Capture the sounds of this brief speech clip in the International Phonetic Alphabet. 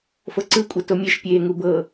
f ɤ ǀ ɯ kʷʼ ɤ t o mʲ e ʃ pʲ eː ŋ u b ɤ

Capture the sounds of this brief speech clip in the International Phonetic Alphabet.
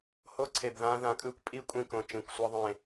h o˦ ǀʰ e˨ b ð ãː˦ ð ã˨ kʼ ɯː˦ kʷ pʼ i˦˨ kʷʼ ĩ˦˨ k õ˨ t͡ʃ ĩ˨ kʷ sʷ ʌ˦ ðˤ ẽ˦˨

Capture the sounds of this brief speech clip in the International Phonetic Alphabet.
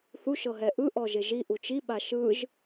θ u ʃ ɤ ɦ ɛ ʔ ɯ ʔ ɔ ʒ e ʒ i ʔ u t͡ʃ i ɓ a ʃ ɯ ʒ

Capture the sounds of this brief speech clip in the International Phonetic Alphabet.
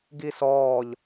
ɡ i s ɔː ʎ

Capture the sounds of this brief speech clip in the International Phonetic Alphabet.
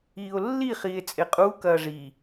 iː o̯ lː i χ iː e̯ t͡sʼ e qʼ uː k ɐː ʐ i

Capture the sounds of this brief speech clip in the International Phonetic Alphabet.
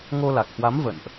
ŋ o˧ l a˨˩ k̚ h w a˨˦ m v ə̰˧˨ n ʔ

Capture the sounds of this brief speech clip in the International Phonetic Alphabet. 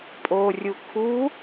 pʼ o rʲ u kʰ u

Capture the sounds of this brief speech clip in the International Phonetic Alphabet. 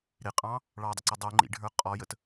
ɾ ɪ qʼ ɑ̃ | ɭ ɑ dˤ ə ǀ ɪ dˤ u ŋ͡ǃ ḭ ɖʱ ə˞ qʼ ɔ j ə t

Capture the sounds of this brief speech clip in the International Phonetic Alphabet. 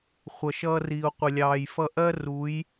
χʷ ʌ˨ ʃ ʌː˧ r iː˨ o̯ qʷ ɪ˨ lʲ ɑː˨ j f ʌ˧ ʔ ɜ˦ r u˨˦ j

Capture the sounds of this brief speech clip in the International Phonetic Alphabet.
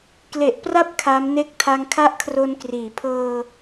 k l e˨˩ ʔ p r a˦˥ p̚ kʰ a˦˥ m n e˥˩ k̚ tʰ a˧ ŋ kʰ a˦˥ ʔ kʰ r o˧ n k r iː˩˦ pʰ ɤː˧

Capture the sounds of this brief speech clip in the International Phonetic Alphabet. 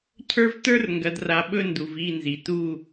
cʰ ə˞˦ v t ə˞˦ r ŋ ɡ ɐ˨ d r a˨ ɓ ɵ˦ n d u˨ v i˦˨ n z i˨ t u˦˨

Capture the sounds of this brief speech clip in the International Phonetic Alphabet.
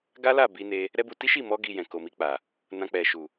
ɡ a˦ l a˦˨ b i˧ n e˧ | ɾ ɛ˦ b u˧ t i˦ ʃ i˦˨ m ɔ˧ ɡ i˨ j ɛ̃˨ k o˨ m i˧ k͡p a˨ | n ã˧ k͡p ɛ˨ ʃ u˨

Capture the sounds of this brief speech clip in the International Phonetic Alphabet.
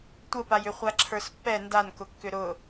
tʷ ə p a j ʏ χʷ a ǁʰ ə˞ s pː ɛ n d a n k ʊ kː ʏ ɾ ʊ

